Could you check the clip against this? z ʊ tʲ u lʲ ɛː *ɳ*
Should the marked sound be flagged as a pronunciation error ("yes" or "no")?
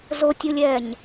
yes